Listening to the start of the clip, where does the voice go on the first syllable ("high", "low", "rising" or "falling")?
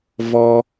high